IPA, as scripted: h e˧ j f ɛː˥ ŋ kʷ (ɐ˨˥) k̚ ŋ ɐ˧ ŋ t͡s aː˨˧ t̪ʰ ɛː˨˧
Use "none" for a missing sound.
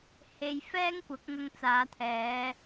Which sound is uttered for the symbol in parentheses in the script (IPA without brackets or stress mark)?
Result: ɐ˨˥